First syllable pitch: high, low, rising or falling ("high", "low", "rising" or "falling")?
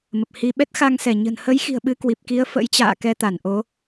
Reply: low